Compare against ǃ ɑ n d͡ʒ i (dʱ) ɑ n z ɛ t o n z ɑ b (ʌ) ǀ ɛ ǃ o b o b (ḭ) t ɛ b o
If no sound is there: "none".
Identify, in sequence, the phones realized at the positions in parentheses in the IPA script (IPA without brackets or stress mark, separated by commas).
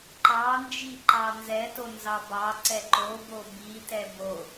ǃ, ɑ, i